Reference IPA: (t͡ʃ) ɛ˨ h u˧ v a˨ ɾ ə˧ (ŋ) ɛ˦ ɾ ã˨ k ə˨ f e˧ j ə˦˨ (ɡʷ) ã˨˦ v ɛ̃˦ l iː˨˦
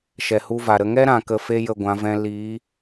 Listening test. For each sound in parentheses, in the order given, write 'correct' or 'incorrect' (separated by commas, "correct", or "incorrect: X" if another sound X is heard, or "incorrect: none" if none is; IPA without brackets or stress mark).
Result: incorrect: ʃ, correct, correct